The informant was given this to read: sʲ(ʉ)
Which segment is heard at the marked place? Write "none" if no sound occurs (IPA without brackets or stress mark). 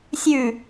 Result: ʉ